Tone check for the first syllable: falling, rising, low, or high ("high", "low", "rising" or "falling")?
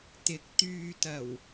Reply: rising